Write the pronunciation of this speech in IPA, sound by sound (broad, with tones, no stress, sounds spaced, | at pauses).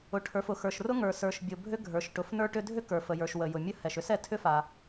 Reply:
ʊ˩ ʈʰ ə˞˩ f ʊ˩ x ə˞˩ ʃ r ʊ˥ ŋ ə˞˩ s ə˞˩ ʃ bʲ ʊ˩ bʱ ʏ˥ ɡʱ ə˞˩ ʃ ʈ ʊ˩ f n ə˞˥ ʈ ʏ˥ dʱ ʏ˥ k ə˞˩ f ə˩ j ə˞˩ ʃ w ə˩ j ʊ˩ mʲ ə˥ h ɛ˩ ʃ ʏ˥ s ɛ˩ tʰ ʏ˥ f a˩